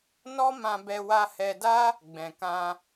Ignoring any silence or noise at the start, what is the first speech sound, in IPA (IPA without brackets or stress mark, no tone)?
n